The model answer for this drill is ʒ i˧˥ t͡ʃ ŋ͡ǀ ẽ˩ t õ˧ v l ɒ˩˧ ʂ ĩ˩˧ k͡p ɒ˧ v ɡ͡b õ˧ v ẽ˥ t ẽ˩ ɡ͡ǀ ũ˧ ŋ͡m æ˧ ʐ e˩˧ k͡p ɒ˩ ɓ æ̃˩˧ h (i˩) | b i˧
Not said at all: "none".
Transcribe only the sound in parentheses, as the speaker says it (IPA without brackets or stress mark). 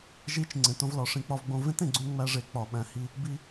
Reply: i˧